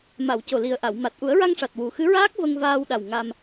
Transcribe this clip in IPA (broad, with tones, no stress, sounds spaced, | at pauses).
m a˨˩˨ w c o˨˩ l i˨˩ ə̯ ʔ a˨˩˨ w m a˨˩ t̚ ʔ u˨˩˦ ə̯ ɹ a˧ ŋ ʂ a˨˩ t̚ w u˨˩ x ɨ˧˥ ɹ aː˦˥ k̚ v ə˧ ŋ v aː˧ w ɗ a˨˩ w ŋ a˧ m